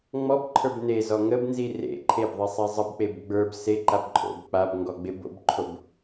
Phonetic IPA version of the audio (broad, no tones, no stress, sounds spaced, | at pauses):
ŋ͡m ɔ b ǃʰ ə˞ b n e z ɔ ŋ ə b n z i r ḛ ǃʰ e b ðˤ i sˤ e zˤ ə b k͡p e b ɡ͡b ə˞ b s e ǃ a b ǃʼ o̰ b k͡p a b ŋ ɡ ɔ ɡ͡b e b o̰ b ǃʰ o b